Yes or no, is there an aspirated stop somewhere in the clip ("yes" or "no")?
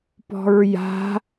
no